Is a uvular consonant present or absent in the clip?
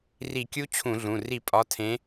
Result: absent